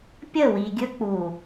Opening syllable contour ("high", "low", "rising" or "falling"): falling